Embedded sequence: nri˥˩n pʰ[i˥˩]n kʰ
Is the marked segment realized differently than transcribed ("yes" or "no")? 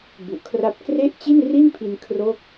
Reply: yes